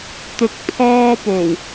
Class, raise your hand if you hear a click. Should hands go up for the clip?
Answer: no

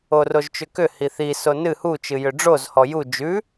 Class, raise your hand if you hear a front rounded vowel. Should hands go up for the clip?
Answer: yes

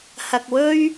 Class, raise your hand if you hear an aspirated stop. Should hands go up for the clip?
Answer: no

